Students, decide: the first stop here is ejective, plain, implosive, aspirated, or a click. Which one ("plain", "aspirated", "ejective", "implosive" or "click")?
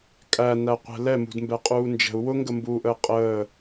ejective